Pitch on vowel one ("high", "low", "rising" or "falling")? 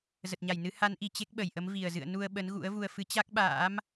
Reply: low